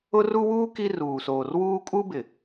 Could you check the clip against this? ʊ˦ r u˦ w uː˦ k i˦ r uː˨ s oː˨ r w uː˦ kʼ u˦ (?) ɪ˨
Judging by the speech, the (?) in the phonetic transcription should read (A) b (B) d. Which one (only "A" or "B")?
A